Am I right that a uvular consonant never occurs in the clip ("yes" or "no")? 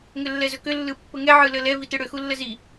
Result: yes